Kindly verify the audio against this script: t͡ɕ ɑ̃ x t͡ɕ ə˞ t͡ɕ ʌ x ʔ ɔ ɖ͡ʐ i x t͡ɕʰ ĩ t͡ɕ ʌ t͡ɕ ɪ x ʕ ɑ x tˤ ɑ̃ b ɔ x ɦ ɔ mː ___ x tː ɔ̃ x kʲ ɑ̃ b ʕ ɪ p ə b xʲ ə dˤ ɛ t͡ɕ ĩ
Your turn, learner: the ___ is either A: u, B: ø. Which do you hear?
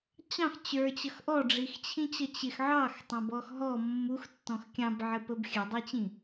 A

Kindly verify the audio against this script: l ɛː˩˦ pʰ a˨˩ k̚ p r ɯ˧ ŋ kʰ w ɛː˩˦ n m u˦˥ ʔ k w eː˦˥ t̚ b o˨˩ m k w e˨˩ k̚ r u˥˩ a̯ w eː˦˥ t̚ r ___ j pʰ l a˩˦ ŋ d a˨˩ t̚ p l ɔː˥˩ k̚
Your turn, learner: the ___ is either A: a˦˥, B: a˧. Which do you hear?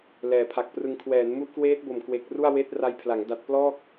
A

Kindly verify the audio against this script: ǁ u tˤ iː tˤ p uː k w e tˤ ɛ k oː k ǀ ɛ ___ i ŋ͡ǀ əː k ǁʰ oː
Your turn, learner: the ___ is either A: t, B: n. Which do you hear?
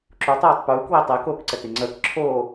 A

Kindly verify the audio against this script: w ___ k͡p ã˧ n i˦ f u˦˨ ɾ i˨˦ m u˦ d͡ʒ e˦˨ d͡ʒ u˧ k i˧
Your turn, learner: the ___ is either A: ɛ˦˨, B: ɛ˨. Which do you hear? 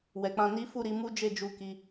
B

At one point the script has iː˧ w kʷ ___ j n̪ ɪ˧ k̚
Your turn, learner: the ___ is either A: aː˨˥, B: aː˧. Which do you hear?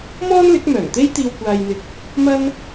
B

